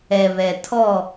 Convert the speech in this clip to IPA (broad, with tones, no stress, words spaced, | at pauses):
ɛ˨βɛ˨ tʰɔ˦˨